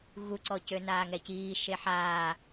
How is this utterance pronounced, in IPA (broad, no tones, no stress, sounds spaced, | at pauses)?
ɣ u ǀ ɔ c ø n aː ŋ ɛ c iː ʃ e ħ aː